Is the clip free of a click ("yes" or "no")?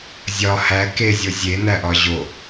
yes